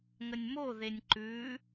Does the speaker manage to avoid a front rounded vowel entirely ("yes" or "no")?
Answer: yes